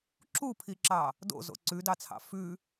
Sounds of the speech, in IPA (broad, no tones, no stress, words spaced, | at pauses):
ǁupʰiǁɑ | do̰zo̰ ǀʉdɑt͡sʰɑ̰ fʉ